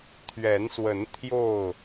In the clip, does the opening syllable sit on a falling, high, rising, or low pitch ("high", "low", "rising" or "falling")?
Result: rising